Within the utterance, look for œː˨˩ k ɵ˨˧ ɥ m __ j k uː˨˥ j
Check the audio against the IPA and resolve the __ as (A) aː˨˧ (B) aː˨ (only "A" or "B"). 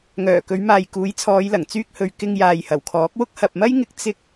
B